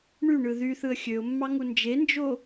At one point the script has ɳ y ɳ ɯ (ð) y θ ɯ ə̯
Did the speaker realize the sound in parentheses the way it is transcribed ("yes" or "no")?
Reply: yes